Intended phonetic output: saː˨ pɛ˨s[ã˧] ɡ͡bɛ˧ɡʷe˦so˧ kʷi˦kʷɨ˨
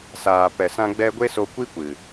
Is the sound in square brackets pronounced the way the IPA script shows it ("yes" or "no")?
yes